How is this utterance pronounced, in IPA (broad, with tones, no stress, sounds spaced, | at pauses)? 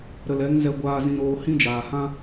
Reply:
ɾ ə˨ l ɛ˨˦ ŋ z ɛ˧ ɡʷ aː˧ z ĩ˧ ɾ oː˧ h ĩ˦ d͡ʒ aː˨ h ã˦